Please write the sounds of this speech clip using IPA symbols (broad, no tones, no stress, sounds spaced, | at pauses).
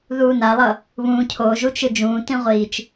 ð uː n a lˠ ʌ | β ũː cʰ o ʒ u t͡ʃ ɯ d͡ʒ ũː t ĩ ʁʷ iː t͡ʃ